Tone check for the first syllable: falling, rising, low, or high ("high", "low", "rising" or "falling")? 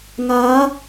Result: rising